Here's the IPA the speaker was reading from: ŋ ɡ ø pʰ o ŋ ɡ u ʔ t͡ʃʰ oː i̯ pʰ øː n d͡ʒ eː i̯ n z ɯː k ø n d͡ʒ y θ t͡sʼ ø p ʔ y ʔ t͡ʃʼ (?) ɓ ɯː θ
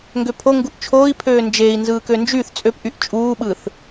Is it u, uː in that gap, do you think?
uː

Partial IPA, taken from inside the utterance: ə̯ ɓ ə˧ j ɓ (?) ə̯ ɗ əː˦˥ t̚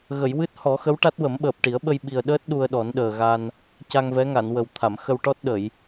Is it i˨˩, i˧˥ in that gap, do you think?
i˨˩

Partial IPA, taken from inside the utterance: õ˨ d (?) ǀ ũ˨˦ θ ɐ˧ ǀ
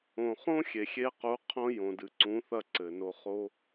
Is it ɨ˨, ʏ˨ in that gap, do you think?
ɨ˨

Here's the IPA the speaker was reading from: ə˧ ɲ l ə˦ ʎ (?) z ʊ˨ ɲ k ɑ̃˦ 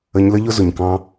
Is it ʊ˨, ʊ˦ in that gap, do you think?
ʊ˦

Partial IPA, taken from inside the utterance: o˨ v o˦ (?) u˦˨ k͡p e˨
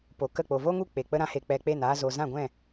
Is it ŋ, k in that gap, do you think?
ŋ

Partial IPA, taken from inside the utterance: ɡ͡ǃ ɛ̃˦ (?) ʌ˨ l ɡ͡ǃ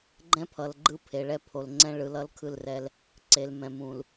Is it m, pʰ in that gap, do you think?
pʰ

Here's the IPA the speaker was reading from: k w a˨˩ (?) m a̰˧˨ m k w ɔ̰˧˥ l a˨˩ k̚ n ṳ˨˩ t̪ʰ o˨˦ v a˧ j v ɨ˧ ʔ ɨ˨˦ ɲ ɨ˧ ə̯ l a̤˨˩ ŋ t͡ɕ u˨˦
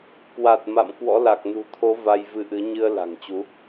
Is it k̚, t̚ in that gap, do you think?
t̚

